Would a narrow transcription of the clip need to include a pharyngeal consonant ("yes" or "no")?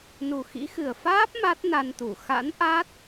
no